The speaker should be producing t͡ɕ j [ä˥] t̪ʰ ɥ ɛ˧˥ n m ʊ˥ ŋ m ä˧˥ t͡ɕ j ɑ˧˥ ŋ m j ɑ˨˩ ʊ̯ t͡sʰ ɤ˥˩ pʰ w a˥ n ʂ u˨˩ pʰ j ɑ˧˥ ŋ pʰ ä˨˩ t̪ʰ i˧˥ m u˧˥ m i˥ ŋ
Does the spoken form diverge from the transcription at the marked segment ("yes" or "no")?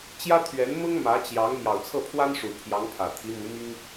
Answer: no